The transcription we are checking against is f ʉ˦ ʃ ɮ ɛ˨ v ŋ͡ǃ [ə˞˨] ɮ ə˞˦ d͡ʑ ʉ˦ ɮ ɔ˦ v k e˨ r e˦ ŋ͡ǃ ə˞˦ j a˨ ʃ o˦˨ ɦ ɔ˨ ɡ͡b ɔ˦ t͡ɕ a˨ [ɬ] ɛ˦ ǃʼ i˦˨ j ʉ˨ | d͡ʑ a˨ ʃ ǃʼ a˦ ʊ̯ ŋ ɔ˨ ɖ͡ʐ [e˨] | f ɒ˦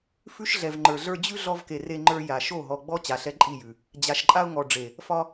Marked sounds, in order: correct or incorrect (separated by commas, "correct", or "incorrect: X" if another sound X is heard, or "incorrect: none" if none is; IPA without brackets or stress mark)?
correct, correct, correct